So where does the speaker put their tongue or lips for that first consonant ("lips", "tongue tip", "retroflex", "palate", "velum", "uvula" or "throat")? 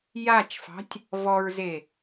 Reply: palate